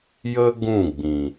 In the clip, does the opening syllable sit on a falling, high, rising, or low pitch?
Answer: high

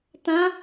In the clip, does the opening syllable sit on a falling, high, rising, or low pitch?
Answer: rising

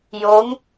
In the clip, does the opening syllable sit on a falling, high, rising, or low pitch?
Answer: rising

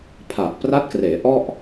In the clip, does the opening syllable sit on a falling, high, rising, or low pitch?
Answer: low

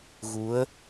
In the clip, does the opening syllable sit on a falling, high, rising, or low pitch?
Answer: rising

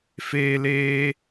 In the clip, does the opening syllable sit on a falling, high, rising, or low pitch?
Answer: high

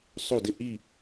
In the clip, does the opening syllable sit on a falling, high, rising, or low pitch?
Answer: falling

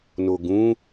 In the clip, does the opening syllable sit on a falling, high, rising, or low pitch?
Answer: low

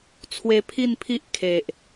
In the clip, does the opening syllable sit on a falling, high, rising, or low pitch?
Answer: high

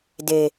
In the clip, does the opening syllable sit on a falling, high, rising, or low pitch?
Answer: low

